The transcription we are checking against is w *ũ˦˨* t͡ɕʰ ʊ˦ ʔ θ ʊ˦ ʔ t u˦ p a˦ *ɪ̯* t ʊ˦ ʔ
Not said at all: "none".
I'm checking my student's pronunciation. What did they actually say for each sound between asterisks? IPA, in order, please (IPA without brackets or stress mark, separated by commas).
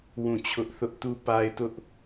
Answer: ũ˦˨, ɪ̯